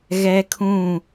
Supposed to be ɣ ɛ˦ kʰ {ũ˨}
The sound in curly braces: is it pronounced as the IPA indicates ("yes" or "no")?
no